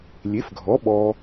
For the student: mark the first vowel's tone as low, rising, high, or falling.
rising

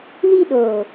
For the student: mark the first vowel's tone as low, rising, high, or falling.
high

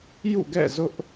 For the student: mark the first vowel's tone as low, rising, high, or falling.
falling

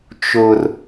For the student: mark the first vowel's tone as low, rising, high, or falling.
high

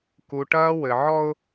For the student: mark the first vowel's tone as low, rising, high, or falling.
low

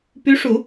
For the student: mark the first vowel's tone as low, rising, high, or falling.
rising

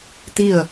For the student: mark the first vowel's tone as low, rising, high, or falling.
falling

